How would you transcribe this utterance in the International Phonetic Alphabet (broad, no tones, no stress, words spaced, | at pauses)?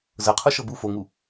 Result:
zɤqʰuʃɤ bu foŋu